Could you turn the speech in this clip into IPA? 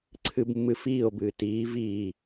ǀʰ ɨ b mː ɨ f iː o̯ b ɨː t iː v iː

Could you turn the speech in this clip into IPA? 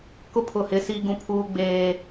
k ʊ˦ pʰ ʊ˦˨ h ɪ˦ s i˦ ɡ ũ˦ pʰ uː˦ ɡ͡b eː˦

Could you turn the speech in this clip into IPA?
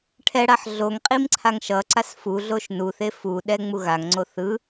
ʈʰ ɛ ɽ a ħ ɮ o ŋ qʼ i m ǀʰ a ŋ ʃ ʌ ǀ a s f u ɮ o ʃ n u θ e f u ɗ ɛ ŋ͡m u ɣ a ŋ ŋ͡ǀ o θ ɯ

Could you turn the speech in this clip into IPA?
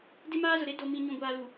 d ɪ˦ m aː˦ z ʊ˨ ɾ e˦ d o˨ m ĩ˨ ɲ ũ˨ ɡʷ aː˨ l u˨

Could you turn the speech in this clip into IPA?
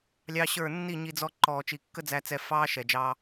lʲ ɑ˦ ɕ ə˞˦˨ nː i˦˨ ɲ i˧ d͡z ɔ˧ ǃ ɔː˨ t͡ʃ i˨ kː ə˦ d͡z æ˧ t͡s ɛ˧ f ɑː˦ ʃ ɛ˨ d͡ʒ ɑ˧

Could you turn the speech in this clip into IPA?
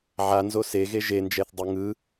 ʕ a n z o s e ɣ e ʒ e n d͡ʒ ɛ θ dˤ ɯ ŋ ɯ

